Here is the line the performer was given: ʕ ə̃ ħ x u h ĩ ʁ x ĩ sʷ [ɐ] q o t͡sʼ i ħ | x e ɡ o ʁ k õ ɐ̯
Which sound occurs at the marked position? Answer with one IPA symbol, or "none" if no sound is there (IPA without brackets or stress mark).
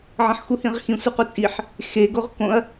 ɐ